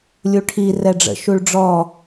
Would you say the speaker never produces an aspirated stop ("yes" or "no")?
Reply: no